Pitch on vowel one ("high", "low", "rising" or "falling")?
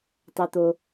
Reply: low